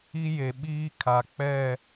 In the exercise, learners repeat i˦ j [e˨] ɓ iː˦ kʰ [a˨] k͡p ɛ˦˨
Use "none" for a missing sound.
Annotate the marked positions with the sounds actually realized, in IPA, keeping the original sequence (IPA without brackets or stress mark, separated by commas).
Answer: e˨, a˨